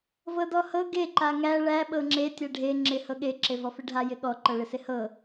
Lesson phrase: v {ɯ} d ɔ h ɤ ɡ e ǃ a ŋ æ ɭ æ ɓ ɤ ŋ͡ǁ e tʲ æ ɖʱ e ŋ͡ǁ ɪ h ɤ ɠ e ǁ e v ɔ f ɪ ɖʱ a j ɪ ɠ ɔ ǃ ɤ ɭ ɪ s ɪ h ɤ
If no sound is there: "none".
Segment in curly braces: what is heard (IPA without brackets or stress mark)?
ɤ